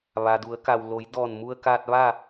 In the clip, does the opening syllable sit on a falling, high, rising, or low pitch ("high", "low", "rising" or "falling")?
low